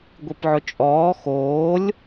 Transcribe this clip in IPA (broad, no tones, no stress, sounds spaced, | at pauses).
ɡʷ i p ʕ ʊ t͡ʃʼ ɔː x oː lʲ